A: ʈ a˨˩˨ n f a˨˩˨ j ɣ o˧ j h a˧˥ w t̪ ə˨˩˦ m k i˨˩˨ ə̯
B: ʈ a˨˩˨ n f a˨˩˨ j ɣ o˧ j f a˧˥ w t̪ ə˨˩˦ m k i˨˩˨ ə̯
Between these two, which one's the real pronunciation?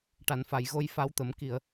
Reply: B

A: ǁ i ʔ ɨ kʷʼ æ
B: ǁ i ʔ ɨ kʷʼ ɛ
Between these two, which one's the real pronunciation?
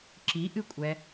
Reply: B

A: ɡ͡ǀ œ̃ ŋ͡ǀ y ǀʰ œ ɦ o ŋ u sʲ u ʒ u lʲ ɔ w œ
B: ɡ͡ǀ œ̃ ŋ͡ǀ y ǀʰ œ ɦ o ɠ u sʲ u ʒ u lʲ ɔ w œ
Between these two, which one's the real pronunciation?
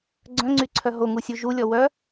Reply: A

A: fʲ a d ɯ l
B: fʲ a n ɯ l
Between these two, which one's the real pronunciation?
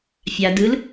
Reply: A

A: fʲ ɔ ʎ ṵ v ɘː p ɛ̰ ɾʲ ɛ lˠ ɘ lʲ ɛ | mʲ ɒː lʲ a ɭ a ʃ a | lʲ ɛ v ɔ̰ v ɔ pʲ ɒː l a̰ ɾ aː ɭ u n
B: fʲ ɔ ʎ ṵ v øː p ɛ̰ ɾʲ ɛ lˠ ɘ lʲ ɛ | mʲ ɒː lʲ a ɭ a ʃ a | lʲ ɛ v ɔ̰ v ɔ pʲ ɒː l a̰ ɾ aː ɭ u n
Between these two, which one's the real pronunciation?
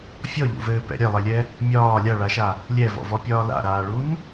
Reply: A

